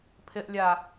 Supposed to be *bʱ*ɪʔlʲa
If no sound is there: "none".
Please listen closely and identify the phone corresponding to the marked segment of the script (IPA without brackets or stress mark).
pʰ